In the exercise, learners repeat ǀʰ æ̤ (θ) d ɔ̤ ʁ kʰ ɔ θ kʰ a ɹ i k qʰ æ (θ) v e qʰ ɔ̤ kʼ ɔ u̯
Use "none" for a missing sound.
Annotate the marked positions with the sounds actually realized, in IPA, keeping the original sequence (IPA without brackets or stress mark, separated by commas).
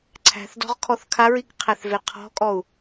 θ, θ